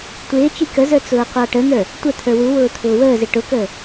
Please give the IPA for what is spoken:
tʷ ɪː t͡ʃ i k ə z ə˞ t͡s ʊː qʷ ɑ ʈ ə n̪ ə˞ | tʷ ə t̪ʰ ə˞ w u w ʊː t̪ʰ ʊː w əː z ɪ ʈ ʊ k əː

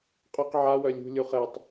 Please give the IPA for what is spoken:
qʼ ø q ʕ a w œ lʲ ṳ lʲ u χ ɛ tˤ

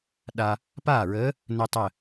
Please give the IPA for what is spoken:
ɗ a˧ | p aː˥˩ ɹ əː˨˥ | n ə˧ tˤ ə˧˩

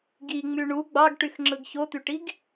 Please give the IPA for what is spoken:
ɡ i ŋ͡m y ɳ u ɡ͡b ɑ ɡ ʈ y x ŋ͡ǁ ɯ ɡ ç o t̪ y ʈ i ɡ

